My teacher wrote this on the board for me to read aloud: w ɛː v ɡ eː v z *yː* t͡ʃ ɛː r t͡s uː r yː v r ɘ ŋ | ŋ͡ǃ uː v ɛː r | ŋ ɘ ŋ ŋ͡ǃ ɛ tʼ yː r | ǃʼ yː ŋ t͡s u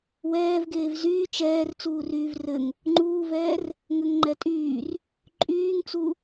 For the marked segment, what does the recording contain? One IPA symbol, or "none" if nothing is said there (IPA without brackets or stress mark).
yː